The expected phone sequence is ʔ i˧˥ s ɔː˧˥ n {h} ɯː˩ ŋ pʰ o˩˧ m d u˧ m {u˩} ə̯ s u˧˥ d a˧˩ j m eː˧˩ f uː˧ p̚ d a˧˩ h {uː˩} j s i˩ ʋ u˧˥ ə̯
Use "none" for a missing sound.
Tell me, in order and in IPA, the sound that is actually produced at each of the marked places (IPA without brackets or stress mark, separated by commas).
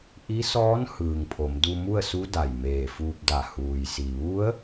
h, u˥˨, uː˩